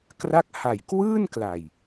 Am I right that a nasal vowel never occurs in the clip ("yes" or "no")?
yes